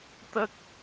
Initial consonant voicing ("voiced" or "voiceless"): voiceless